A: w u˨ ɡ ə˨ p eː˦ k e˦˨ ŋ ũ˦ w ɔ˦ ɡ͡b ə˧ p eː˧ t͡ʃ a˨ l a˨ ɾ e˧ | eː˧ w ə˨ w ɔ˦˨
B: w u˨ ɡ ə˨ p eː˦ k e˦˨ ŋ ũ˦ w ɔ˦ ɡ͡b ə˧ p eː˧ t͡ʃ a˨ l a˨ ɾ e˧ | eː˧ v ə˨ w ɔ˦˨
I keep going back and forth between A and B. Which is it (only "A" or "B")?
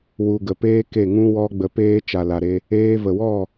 B